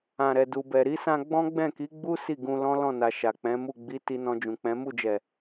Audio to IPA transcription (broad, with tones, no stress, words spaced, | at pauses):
ã˨ɾɛ˨ du˨bɛ˨ɾi˨˦sã˧ ɡ͡bɔ̃˦ɡ͡bɛ̃˦˨ki˨˦ɡ͡bu˦ si˦˨ɡũ˧ lɔ̃˦ lɔ̃˦˨na˨ ʃa˨k͡pɛ̃˨˦mu˦˨ ɡ͡bi˨˦ ti˧nɔ̃˧d͡ʒũ˨k͡pɛ̃˨˦ mu˦˨d͡ʒɛ˨